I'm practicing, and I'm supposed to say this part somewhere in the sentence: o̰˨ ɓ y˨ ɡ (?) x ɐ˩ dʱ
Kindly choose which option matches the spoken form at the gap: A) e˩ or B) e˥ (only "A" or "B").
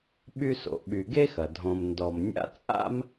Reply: B